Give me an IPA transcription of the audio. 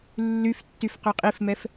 lːyf tːyfqøqʼifmɛf

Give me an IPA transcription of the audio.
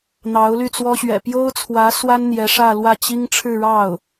n̪ɑ˧˥ʊ̯ly˥˩t͡swɔ˥ ɕɥɛ̰˨˩pjo˥ʊ̯t͡sʰwä˧˥ swa˥n n̪jɛ˧˥ʂä˥˧ lwä˥˩t͡ɕi˥ŋ ʈ͡ʂʰɻ̩˥˧ɻɑ˥˩ʊ̯

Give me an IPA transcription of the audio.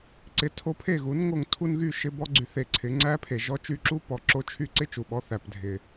ǀɪ˧ tʰo˧pʰe˦˨ɣu˨˦n ŋo˧ŋtʰu˦nɣy˦˨ ʃɪ˦bɔ˦ ɡ͡ǀy˧ θe˧ǀʰɪ˨˦ ŋ͡ǀæ˦pʰe˨ʒɔ˦ t͡ʃy˧ǁu˦pɔ˨ ǁo˦t͡ʃʰy˦ ǀɪ˦t͡ʃu˨ɓɔ˧ θæ˨pdʱɪ˨

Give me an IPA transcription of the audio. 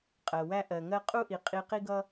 qʼɜ˨wæ˦ ʔɜ˨ŋɜ˦ qʼu˦ʔi˨ qʼi˧qi˦ɡʌ˦

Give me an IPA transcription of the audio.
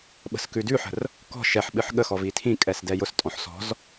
ɓə̤skʉdʉħə̤r | kɔ̤ ʃɛħɓɨħ ɠəxɔv itʰĩkʼɛs dɛjʊstʼɔ̃ħ sɔ̤z

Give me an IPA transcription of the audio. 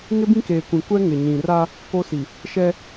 ŋɪ˦bĩ˦keː˨kʷĩ˨ kʷɛ˦ŋɪ˨ɲĩ˨ra˦ | ko˦si˨ | ʃɛ˦

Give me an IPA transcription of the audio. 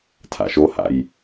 tʰa̰ʃoha̰j

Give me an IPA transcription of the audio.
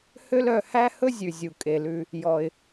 hø˦lœ˧hæ˦hɵ˦ zʲʉ˨ zʲu˨kʼe˨lʉ˧ | jɔ˧ɪ̯

